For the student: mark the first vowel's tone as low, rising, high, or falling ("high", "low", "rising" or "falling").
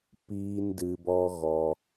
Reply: high